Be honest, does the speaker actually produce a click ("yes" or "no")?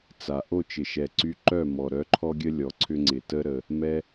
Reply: yes